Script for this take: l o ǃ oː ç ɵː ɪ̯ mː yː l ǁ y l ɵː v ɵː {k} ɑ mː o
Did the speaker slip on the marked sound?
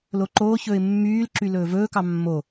no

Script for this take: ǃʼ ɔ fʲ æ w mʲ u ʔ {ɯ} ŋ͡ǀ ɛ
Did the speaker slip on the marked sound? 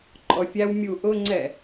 yes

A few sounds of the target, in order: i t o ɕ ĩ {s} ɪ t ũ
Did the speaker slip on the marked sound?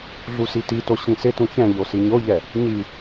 no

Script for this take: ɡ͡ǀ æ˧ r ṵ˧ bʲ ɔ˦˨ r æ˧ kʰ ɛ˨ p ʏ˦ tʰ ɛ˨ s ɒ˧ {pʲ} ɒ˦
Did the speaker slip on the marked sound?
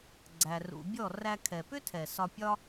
no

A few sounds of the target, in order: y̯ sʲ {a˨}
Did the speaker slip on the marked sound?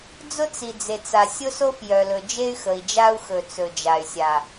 no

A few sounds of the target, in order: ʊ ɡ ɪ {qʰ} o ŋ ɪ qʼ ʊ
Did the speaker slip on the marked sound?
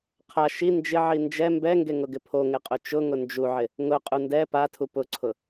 yes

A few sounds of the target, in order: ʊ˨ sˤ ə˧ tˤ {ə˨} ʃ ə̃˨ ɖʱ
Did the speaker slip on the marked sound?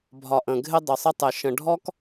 yes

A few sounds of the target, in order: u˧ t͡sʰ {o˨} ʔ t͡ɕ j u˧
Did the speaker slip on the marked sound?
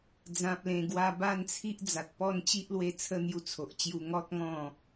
no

